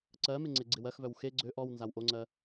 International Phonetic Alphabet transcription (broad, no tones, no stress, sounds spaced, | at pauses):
ǀ ɜ m ɪ ŋ͡ǀ e ɡ͡ǀ ɪ w ɜ x v œ w x e ɡ͡ǀ ø ʔ ɔ w n z a w ʔ o ŋ͡ǀ ɜ